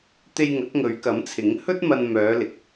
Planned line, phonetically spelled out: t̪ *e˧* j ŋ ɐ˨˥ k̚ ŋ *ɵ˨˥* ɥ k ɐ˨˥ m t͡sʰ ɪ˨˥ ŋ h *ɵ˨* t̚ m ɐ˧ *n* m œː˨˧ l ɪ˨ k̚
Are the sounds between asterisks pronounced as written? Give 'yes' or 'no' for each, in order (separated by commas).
yes, no, no, yes